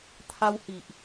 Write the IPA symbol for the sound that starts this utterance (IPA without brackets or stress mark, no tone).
t̪ʰ